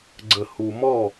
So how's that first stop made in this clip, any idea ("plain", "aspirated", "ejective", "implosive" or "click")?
click